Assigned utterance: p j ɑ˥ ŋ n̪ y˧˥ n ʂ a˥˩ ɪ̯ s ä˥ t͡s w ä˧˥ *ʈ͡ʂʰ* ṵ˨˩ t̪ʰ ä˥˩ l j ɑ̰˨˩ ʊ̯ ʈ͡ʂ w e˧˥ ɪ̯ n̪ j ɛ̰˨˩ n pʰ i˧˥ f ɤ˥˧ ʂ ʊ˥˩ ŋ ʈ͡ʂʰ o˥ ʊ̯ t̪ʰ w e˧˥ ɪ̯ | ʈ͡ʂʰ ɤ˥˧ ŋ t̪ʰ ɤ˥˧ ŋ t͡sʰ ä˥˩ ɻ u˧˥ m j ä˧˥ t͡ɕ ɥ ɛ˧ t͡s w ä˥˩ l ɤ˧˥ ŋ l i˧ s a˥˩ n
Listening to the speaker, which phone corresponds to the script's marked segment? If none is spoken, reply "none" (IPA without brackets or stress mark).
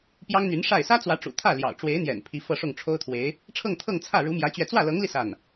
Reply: ʈ͡ʂ